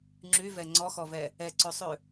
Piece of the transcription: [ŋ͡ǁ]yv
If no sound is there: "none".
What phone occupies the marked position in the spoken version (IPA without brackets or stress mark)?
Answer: ŋ͡ǁ